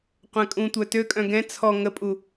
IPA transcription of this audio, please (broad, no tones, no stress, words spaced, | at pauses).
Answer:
qʷɛ̃kʼũtʷœ tøkʼœ̃ ɡɛ̃ t͡sʰɔ ŋəpʼu